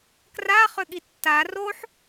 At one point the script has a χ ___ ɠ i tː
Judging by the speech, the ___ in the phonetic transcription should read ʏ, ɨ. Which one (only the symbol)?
ʏ